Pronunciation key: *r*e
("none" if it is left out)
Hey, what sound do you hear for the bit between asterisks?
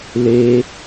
l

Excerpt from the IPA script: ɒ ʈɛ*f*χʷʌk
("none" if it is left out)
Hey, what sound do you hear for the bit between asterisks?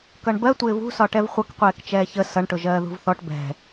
v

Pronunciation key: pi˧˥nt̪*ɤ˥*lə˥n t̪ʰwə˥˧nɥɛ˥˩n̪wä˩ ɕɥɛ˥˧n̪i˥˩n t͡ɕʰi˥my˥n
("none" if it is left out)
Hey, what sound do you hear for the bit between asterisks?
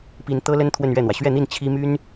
ɤ˥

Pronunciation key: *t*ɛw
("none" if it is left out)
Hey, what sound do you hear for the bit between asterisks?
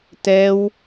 t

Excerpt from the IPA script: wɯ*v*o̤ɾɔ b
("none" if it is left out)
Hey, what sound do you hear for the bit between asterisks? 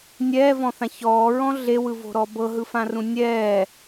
v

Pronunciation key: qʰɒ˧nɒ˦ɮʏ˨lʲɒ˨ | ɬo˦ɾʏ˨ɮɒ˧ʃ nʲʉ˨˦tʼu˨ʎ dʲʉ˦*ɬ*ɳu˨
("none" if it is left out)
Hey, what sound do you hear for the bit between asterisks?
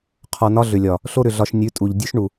ʃ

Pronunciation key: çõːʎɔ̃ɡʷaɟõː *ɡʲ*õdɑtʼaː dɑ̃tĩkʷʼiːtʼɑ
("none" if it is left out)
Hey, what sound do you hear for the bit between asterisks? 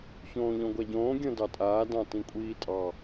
ɡʲ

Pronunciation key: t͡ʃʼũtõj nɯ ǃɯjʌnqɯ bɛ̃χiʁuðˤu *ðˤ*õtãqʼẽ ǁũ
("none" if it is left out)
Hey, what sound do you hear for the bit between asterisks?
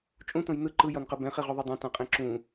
dˤ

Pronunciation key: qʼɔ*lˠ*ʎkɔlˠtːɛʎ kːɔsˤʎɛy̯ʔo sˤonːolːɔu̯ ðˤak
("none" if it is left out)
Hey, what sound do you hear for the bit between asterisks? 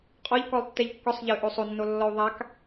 none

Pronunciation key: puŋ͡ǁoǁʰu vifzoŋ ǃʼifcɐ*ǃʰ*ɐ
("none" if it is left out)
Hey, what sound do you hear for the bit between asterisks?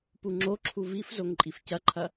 ǃʰ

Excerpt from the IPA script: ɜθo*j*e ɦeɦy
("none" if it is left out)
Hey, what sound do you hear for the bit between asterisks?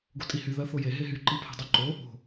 j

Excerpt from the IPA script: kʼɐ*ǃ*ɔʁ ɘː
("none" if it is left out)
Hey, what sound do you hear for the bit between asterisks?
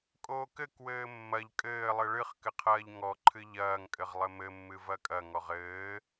ŋ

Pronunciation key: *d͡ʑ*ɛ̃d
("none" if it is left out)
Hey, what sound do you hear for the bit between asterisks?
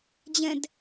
d͡ʑ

